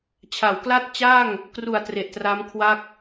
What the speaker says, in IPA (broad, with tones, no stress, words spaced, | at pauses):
t͡ɕʰa˩˦wkla˥˩t̚t͡ɕaː˥˩ŋ | kru˨˩a̯ tre˨˩ʔtra˦˥m kʰwa˥˩k̚